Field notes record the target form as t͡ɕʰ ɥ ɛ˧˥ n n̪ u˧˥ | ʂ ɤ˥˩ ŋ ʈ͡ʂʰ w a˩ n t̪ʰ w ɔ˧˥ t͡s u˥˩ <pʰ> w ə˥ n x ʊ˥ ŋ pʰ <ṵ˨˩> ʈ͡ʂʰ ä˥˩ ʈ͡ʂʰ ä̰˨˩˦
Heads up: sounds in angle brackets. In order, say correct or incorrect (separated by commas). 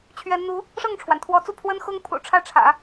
correct, correct